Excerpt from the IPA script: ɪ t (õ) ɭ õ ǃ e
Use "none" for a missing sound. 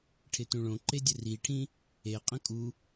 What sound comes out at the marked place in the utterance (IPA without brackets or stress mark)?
ũ